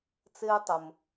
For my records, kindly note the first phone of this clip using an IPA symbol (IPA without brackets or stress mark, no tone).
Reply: t͡s